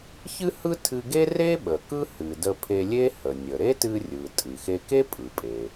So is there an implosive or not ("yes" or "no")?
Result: yes